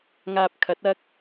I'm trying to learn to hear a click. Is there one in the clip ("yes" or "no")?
no